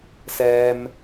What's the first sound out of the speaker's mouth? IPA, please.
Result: s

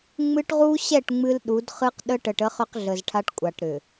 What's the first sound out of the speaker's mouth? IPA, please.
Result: ŋ͡m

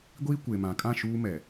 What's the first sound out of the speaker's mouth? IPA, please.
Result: ɡʷ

